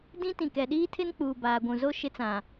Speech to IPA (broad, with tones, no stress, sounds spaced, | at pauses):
d ĩ˦ t ĩ˨ k ɛ˨ ɗ iː˦ tʰ ɪ˦ n k͡p uː˨ b aː˨ ɡʷ ũ˨ z o˦ ʃ ɪ˦ t͡s ã˨